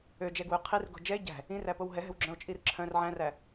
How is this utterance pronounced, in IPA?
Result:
ø d͡ʒ ɛ ɡ w ø qʰ i r ɡ o̤ d͡ʒ ɛ e̯ ɟ æ̤ | ĩ r æ p o w ɦ ɛ ɦ ɛ̤ w ɡ͡ǁ œ̃ o̯ t͡ʃʼ i r ǁʰ œ̃ r ʕ æ̃ r æ

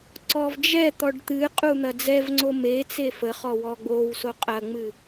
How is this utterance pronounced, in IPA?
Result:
ǀ ɔ v d͡ʒ ɛ t̪ ɔ ɖ t̪ ɨ qʼ u n̪ ɐ d͡z ɛ v ŋ͡ǀ o m e t͡s e f ə χ ɔ w ɔ ɡ͡b o w s o qʼ ɐ ŋ͡m ɨ

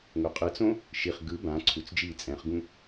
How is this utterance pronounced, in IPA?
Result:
ŋ o qʼ ɯ t͡s õ | ʃ i χ ɡ ɯ b ã ǀʰ u t͡s d͡ʒ iː t͡sʼ ɛ̃ χ ɡ ũ

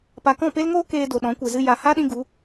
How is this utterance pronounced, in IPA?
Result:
p a˨ k ɔ̃˦˨ p e˦ l ŋ oː˦ k eː˧ d o˨ ɗ ɔ̃˨˦ kʷ e˨ z ɨ˦ j a˨ h a˦ ɗ ĩ˧ ɡ u˨˦

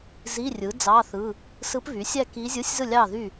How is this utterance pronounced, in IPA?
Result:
z i˧˥˧ rʲ ɯ˩˥ d͡z ɑ˧˥˧ θ ɯ˧˥˧ | s ɯ˧˥ p β y˩˥ sʲ æ˥˨ k i˧˥ zʲ ɯ˧˥˧ sʲ z ɯ˥˨ lʲ ɑ˥˨ ð y˥˨

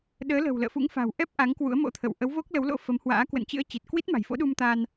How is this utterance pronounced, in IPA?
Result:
ɗ əː˨˦ l ə̤˨˩ w l ə̰ː˧˨ f ṵ˧˥ ŋ f a̤˨˩ w ʔ ɛ˦˥ p̚ ʔ a˨˦ ŋ k w ṵ˧˥ ə̯ m o̰˧˥ t̪ʰ ə̰˧˨ w ʔ ə˨˦ w v o˦˥ k̚ l ə˨˦ w l o̰˧˥ f ə˨˦ m h w a̰ː˧˥ k w ə̰˧˨ n t͡ɕ ɨ̰˧˥ ə̯ t͡ɕ i˨˩ t̚ k w i˦˥ t̚ m a̤˨˩ j f o̰˧˥ ɗ u˧ m t̪ a˧ n

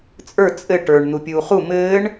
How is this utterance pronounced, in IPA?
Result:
t͡sʼ ə˞ t͡sʼ ɘ ʈ ə˞ ɳ n̪ u pʲ uː χ u m ɘː ɳ

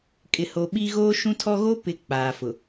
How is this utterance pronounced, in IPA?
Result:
kʼ ɪ˨ h o˨ ɓ i˦ ɣ oː˦ ʃ ũ˦ tʰ ɔ˦ ɣ o˦ p ɪ˨˦ k͡p aː˨ f ʊ˨

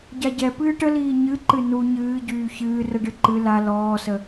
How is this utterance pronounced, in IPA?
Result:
ɟ a ɟ ɛ p ɨː ʈ ə l iː ɲ ɨ ǃ ɨ n u ɲ ɨː ɟ yː ç ɨː r ə ɖ ɨ ǃ ɨ l a l ɔː s ə

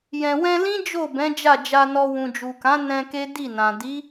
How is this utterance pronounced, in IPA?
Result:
j ɛ̃˨ w ɛ̃˧ l ĩ˦ d͡ʒ o˦˨ b ɛ̃˨˦ d͡ʒ a˦˨ d͡ʒ a˧ n ɔ˧ w ũ˨ d͡ʒ u˨ k ã˨˦ n ɛ̃˧ k e˦ d i˦˨ n ã˨ d i˨˦

